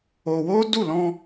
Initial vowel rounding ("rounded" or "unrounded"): rounded